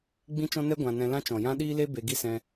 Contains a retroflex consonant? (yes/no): no